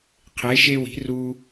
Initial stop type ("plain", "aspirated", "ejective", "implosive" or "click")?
aspirated